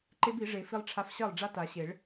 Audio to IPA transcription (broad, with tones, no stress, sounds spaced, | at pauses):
ǃ e˦˥ b i˨˩˦ ʐ e˨˩˦ f i˧ lˠ ʈ͡ʂʰ a˧ f ɕ ɜ˥˩ lˠ ɖ͡ʐ a˦˥ t a˨˩˦ ɕ e˨˩˦ ɭ